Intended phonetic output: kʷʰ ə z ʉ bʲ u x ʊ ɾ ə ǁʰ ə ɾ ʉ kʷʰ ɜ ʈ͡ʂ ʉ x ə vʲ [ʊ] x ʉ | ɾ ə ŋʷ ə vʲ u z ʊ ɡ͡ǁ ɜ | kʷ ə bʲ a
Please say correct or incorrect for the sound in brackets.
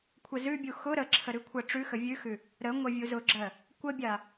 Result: incorrect: ʉ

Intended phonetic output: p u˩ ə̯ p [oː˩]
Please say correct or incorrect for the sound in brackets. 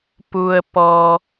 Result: incorrect: ɔː˩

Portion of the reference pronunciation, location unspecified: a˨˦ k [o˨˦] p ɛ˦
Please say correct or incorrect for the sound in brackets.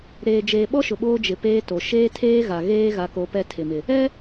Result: correct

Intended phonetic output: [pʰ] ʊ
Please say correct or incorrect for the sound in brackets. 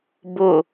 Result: incorrect: b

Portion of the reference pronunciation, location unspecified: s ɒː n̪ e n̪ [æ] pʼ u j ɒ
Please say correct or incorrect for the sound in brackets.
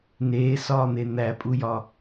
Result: correct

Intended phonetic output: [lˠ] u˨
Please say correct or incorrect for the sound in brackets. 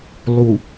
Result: correct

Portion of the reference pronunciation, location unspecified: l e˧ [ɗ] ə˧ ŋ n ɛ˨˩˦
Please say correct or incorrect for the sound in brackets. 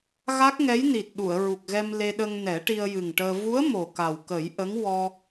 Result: correct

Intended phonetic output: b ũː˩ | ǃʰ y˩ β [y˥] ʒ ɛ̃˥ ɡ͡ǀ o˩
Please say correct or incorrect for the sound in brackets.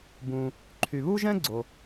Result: incorrect: u˥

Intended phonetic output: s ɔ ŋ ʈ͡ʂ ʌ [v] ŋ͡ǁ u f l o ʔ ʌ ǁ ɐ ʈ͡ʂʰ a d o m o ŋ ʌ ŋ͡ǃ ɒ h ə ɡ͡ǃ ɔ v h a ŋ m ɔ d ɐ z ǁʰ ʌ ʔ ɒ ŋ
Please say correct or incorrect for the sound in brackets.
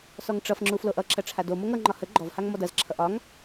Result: incorrect: f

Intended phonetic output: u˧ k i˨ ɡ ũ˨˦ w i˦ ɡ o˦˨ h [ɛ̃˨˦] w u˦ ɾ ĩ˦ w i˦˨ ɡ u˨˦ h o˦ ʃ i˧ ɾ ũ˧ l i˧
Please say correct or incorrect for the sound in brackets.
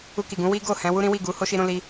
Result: correct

